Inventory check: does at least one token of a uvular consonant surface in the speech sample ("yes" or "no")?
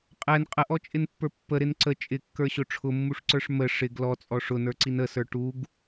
yes